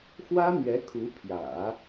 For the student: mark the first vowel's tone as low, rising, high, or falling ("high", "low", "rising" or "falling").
high